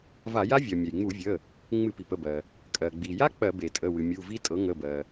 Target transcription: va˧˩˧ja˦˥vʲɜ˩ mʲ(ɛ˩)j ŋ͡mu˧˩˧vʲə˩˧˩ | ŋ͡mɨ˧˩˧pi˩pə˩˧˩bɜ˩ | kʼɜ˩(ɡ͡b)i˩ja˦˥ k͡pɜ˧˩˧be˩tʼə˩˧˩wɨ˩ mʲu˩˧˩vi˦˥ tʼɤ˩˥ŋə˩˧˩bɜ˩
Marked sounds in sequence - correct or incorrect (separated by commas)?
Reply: correct, correct